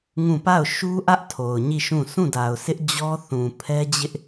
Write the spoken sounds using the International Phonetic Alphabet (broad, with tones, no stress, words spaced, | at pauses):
ŋũ˦˨ pa˦˨ʊ̯ʃu˦ʔä˦ʔ tʰo˨ʊ̯ɲi˦˨ʃũ˦˨ sʰũ˦˨da˨ʊ̯sɪ˦ʔ d͡ʑɔ˦ θũ˨pʰɛ˦d͡ʑɪ˦ʔ